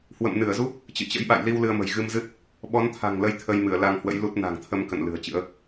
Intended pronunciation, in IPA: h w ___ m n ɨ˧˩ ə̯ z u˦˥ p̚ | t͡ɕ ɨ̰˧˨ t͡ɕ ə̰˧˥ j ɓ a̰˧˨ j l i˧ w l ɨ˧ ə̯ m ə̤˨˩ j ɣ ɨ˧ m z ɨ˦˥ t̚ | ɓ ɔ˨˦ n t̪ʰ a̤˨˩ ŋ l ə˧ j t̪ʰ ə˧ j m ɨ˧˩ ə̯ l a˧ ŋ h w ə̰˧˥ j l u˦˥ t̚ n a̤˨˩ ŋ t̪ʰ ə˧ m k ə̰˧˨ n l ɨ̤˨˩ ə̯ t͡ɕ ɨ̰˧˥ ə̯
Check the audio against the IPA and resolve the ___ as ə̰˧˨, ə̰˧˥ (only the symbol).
ə̰˧˨